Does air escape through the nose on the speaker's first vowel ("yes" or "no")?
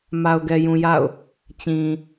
no